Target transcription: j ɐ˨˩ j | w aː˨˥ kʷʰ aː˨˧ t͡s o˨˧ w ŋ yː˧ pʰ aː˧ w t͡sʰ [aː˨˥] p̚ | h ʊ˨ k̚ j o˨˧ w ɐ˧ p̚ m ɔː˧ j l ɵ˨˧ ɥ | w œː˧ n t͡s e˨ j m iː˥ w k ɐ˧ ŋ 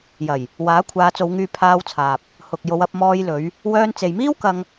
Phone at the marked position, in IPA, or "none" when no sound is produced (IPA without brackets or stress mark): aː˨